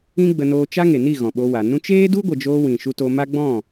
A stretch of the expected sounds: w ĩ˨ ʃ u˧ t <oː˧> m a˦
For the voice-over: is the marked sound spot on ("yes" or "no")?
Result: no